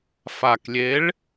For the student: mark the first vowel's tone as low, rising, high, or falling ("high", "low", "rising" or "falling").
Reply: low